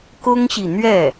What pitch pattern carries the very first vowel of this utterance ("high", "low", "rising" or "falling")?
high